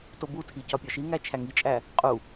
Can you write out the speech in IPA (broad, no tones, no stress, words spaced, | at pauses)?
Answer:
tobutʰi cɒpʲɒʃiŋæ t͡ʃʰæŋit͡ʃʼæ | qʼu